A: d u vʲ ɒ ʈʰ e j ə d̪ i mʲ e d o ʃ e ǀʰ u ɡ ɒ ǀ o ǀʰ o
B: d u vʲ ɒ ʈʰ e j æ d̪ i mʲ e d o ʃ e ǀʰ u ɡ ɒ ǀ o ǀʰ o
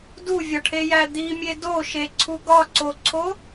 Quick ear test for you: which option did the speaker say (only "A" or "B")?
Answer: B